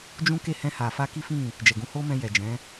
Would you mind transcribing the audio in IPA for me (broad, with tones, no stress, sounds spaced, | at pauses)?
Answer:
d͡ʒ ũ˦ k e˦˨ h ɛ̃˧ h a˨ f a˧ k i˦ f ĩ˦˨ | d͡ʒ ɛ˨ ɡ ũ˨˦ h o˦ m ɛ̃˧ j ɛ˨ d͡ʒ ɛ̃˨˦